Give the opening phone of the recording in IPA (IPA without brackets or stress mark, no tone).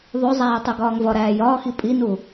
ðˤ